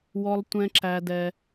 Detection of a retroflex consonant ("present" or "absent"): absent